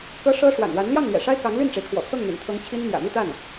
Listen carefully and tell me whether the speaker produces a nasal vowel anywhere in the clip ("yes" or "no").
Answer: no